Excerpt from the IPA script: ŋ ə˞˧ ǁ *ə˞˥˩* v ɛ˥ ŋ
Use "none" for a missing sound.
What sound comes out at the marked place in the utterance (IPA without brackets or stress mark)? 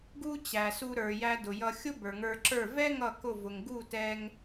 ə˞˥˩